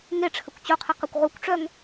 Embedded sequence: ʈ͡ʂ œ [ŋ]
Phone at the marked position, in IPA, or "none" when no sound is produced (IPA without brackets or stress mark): ŋ